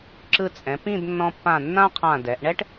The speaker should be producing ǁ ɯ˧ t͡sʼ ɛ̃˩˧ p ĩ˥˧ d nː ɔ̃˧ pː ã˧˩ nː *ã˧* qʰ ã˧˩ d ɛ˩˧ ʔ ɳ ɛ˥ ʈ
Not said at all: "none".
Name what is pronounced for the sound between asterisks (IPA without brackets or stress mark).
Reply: ã˥